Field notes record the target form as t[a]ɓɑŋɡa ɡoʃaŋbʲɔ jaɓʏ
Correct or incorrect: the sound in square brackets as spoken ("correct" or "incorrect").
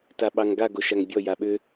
correct